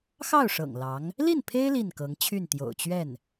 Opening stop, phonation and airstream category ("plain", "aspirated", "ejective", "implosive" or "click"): aspirated